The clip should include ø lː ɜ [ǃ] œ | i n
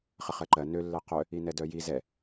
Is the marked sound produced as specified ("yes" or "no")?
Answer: no